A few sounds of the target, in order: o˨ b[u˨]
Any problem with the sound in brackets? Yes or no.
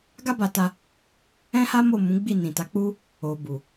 no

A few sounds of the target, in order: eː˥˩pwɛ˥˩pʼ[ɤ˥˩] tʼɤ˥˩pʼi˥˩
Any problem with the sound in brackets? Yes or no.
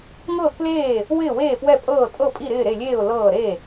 yes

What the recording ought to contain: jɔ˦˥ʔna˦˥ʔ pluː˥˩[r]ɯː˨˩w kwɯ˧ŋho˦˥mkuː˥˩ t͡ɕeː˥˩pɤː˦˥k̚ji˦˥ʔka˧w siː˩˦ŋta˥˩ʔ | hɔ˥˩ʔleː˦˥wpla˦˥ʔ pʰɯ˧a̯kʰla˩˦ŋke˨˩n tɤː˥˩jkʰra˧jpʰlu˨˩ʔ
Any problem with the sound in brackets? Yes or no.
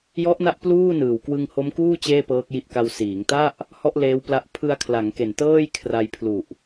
yes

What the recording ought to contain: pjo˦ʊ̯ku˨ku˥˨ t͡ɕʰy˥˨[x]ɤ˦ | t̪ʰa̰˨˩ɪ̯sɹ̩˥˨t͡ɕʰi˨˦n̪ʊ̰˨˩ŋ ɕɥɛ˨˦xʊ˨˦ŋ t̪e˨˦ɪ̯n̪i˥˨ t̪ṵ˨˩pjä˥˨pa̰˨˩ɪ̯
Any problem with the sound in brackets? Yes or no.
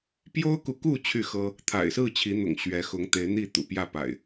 no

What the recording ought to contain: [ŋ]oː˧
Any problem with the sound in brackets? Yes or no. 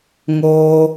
no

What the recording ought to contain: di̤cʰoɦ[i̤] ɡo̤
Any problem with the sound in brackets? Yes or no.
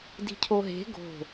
yes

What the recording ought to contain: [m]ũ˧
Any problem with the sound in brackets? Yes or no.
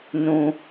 yes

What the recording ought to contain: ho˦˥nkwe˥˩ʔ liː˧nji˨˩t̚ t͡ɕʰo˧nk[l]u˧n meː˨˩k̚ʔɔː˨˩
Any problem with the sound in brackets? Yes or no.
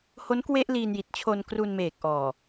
yes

